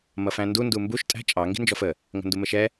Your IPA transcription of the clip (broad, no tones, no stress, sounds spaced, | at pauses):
m ʌ f æ̃ n d u n d u m b u ʃ tʼ æ̤ t͡ʃʼ ɑ ŋ ɡ i̤ n d͡ʒ ɔ f ə | ŋ ə̤ n d u m ə ʃ ɛ